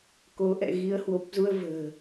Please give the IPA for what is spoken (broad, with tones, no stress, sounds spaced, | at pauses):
k o˨˦ ʔ ɛ̰˧˨ ɣ i˨˦ ə̯ h w o˨˩ p̚ z u˧ ə̯ v ə̤ː˨˩